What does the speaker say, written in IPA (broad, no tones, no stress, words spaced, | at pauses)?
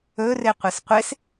ɵrɪqʷɪs qʷes